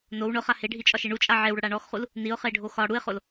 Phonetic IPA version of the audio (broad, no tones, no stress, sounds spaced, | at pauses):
n o w ɳ ʊ χ a h e ɖʱ i t͡ʃʼ ɒ ʃ e ɳ u t͡ʃʼ a ʕ e w ɽ ʊ ɽ a ɳ ɔ x χ u l | n i ʊ̯ χ e ɖʱ o x ɒ ɽ u ɪ̯ χ o l